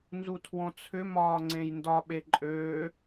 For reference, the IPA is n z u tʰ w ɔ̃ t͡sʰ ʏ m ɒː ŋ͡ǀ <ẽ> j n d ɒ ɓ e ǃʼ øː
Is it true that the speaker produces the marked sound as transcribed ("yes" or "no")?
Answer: yes